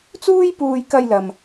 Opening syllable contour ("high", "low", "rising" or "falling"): high